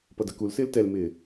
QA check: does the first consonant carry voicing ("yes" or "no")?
no